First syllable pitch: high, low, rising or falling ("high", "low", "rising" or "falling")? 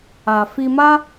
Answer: low